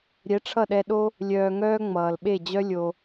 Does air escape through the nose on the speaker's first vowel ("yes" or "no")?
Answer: no